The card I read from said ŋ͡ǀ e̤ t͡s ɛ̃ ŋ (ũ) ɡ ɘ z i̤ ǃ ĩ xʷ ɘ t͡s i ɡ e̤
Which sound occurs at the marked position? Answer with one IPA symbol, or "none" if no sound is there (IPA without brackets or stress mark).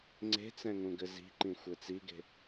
ũ